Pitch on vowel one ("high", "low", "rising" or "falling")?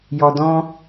low